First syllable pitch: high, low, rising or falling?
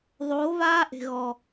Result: rising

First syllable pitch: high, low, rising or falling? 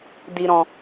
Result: low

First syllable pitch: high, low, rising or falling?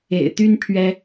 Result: low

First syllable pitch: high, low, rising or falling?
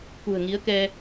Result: low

